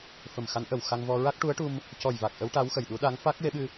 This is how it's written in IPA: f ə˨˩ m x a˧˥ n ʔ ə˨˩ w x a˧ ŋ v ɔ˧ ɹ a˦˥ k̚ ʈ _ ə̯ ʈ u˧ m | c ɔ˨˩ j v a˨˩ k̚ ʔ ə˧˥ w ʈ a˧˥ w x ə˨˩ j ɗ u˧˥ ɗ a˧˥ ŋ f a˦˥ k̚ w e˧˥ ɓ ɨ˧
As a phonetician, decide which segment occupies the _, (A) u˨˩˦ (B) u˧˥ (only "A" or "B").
B